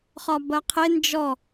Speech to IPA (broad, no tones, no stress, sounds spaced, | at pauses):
χ ɒ b ɐ qʰ e n d͡ʒ ɔ